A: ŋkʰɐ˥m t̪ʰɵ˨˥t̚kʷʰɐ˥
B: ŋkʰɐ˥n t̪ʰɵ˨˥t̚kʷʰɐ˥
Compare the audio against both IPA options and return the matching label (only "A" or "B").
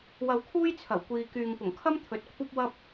A